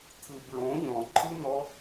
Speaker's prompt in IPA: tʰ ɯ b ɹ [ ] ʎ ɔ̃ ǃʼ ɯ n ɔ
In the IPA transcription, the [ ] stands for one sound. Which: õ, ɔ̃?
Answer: õ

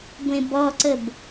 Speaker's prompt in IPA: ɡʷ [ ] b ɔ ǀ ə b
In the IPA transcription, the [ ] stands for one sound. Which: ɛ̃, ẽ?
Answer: ẽ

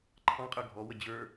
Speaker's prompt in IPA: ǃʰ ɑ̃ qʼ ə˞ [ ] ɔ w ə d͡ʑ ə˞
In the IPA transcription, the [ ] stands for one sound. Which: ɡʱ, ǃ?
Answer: ɡʱ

